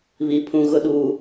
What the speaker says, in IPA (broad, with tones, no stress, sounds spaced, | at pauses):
β i˨ pʰ ũ˦ ɣ ʊ˦ ɗ uː˨